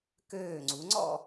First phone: k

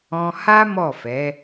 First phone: ɔ̃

